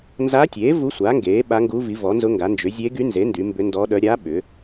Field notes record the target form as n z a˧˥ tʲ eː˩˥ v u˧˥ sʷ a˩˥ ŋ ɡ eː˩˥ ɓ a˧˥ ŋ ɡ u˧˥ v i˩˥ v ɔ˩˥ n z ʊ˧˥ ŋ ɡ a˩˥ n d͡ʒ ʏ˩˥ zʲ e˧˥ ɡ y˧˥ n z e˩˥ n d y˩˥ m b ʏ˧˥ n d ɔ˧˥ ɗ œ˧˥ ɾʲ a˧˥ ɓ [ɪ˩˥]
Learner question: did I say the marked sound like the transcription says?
no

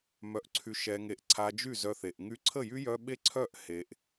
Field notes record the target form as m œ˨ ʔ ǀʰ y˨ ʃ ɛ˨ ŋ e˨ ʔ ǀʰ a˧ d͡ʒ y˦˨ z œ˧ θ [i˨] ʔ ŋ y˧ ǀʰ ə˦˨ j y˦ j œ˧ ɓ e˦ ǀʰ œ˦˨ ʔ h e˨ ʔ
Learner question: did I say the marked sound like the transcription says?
no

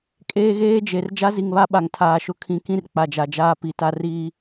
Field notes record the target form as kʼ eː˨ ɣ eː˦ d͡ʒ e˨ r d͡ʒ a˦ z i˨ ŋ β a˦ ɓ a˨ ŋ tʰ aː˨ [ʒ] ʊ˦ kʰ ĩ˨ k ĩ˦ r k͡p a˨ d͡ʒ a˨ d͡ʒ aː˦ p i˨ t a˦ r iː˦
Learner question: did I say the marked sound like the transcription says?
no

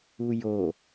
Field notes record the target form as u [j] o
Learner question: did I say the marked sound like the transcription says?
yes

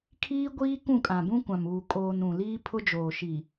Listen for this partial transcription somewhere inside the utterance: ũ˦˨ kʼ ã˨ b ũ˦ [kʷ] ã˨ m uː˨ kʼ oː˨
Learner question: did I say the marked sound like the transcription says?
yes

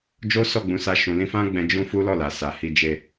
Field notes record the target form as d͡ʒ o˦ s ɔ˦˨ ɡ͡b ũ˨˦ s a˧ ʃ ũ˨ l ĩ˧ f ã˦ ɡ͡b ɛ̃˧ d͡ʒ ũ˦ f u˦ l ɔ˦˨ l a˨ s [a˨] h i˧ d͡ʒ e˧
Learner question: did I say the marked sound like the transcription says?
yes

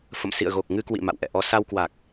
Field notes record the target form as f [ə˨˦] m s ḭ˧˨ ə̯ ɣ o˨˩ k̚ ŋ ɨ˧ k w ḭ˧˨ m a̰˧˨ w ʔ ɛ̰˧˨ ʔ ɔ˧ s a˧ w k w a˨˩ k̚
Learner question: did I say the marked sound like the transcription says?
no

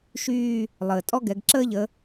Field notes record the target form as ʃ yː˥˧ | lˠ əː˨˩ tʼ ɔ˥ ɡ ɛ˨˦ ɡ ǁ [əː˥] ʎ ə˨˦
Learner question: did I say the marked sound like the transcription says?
yes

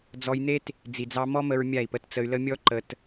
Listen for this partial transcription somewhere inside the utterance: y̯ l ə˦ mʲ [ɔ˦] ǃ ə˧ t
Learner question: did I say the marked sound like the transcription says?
yes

